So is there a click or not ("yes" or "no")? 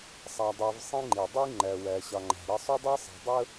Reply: yes